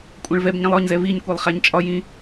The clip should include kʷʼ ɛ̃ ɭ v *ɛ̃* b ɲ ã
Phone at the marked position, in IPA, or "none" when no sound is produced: ɛ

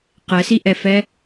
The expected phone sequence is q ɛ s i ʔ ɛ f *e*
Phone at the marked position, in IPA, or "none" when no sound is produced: ɛ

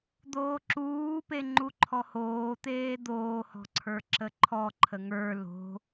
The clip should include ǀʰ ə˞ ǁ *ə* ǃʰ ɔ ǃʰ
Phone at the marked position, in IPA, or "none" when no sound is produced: ə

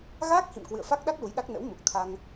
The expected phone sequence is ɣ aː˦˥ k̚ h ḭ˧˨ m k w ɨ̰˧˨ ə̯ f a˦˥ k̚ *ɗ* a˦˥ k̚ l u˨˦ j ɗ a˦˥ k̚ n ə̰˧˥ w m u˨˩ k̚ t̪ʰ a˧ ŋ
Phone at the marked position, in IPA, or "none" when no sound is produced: ɗ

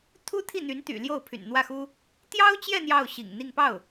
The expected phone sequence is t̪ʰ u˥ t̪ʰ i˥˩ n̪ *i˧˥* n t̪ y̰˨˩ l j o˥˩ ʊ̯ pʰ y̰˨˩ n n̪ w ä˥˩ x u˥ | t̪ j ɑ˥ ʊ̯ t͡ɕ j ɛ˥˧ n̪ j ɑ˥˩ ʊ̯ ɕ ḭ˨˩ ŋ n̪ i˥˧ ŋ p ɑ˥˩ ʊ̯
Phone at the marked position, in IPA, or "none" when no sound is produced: y˧˥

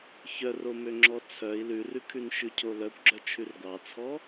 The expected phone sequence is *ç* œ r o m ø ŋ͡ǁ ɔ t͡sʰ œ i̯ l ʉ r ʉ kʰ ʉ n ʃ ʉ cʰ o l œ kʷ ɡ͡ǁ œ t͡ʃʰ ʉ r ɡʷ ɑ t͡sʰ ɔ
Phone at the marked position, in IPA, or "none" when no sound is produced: ç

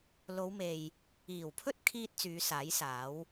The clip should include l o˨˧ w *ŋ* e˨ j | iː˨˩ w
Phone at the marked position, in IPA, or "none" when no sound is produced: m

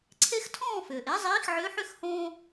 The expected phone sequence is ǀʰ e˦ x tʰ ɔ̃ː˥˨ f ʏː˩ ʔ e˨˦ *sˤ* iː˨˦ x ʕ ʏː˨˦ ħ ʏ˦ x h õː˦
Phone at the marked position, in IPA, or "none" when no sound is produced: zˤ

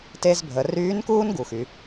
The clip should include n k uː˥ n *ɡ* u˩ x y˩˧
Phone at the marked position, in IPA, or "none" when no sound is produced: ɡ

